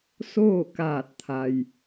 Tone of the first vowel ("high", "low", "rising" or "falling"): falling